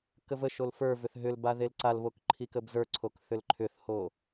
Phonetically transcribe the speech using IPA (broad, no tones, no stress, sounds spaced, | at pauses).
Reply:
k ə v ə ʃ o l f ə˞ v ʏ θ ɦ ʏ l b a ð e l ǀ a l β o k ǃʰ i k ə b z ə˞ ǀʰ o k θ ʏ l ǃʰ ʏ θ h o